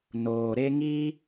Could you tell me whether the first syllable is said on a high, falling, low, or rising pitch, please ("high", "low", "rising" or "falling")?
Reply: low